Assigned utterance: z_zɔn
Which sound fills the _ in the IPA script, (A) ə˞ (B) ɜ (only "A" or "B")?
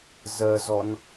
B